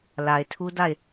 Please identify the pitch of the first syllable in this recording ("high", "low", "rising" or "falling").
low